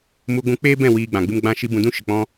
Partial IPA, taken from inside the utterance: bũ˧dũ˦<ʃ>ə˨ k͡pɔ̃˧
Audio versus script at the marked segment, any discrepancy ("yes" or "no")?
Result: no